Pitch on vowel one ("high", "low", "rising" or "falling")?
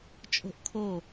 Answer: high